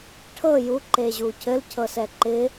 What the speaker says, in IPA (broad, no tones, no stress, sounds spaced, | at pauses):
ʈʰ ɤ j u ǃ e ʑ u cʰ ɘ l cʰ ɤ s ɛ ǃ ɪ